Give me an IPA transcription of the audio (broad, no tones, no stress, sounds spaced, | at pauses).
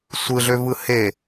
sʷ ɯ ɮ ø v ɯ h e